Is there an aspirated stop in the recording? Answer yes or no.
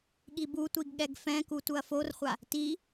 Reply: no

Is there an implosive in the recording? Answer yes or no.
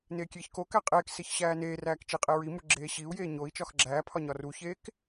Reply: no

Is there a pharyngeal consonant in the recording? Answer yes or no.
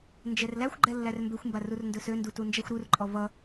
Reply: no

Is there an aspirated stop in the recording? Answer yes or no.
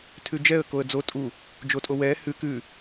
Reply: yes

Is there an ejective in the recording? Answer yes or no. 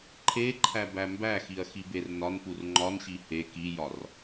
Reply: no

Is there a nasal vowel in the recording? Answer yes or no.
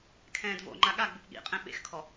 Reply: yes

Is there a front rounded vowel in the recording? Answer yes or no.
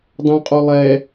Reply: yes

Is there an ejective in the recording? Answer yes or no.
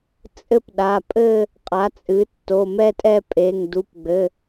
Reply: yes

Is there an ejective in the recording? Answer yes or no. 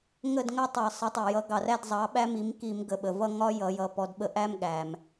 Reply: no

